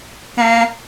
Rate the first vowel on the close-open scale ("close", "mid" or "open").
mid